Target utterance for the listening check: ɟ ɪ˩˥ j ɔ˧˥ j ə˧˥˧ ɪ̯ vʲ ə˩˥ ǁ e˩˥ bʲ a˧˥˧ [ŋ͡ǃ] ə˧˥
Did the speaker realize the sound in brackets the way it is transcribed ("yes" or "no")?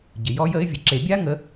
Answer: no